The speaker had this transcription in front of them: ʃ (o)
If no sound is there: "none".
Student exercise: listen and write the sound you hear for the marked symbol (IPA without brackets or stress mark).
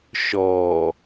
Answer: ɔ